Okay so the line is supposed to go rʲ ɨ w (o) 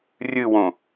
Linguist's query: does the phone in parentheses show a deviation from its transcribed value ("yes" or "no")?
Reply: yes